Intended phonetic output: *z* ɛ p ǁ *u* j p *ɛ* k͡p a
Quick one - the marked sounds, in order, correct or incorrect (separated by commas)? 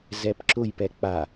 correct, incorrect, correct